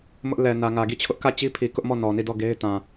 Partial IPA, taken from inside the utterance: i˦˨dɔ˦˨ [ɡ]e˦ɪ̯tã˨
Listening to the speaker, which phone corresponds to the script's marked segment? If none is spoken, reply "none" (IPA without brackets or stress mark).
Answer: ɡ